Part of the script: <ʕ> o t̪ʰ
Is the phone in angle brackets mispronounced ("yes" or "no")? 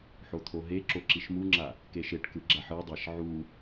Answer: yes